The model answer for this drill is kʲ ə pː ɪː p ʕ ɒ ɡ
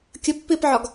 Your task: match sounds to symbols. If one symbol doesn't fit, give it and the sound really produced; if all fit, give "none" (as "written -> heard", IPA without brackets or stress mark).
none